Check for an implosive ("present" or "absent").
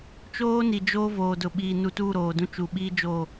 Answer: present